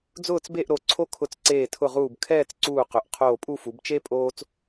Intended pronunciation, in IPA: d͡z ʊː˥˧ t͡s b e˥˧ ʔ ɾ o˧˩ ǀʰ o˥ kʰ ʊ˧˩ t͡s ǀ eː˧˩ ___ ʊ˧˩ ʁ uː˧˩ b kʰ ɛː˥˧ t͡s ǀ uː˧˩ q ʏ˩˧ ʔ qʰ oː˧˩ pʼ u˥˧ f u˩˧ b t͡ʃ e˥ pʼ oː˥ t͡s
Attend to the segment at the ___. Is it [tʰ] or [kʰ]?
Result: tʰ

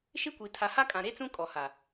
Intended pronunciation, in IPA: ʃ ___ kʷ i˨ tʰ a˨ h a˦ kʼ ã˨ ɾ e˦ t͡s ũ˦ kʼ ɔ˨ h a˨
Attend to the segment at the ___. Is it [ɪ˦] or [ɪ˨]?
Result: ɪ˦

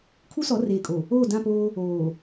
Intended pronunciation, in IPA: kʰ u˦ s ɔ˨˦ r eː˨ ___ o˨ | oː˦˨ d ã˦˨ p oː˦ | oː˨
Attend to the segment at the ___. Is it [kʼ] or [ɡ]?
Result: kʼ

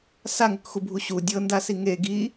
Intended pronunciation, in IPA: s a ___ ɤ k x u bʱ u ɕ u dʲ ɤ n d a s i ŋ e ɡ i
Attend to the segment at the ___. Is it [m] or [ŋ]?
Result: ŋ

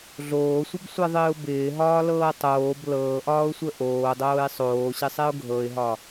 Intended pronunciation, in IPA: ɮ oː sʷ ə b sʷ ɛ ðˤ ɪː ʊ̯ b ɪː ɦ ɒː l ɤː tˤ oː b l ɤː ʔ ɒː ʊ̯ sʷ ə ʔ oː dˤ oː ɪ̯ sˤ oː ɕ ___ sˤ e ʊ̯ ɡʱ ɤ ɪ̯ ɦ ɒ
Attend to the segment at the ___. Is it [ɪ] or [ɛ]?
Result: ɪ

